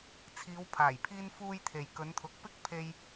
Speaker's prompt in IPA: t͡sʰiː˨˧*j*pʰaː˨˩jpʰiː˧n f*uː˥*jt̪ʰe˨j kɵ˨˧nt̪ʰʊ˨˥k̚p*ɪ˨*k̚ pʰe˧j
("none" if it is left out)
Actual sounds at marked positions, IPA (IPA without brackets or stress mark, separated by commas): w, uː˧, ɪ˥